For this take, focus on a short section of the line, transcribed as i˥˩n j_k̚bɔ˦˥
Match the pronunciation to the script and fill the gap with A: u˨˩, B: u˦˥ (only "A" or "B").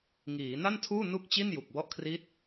A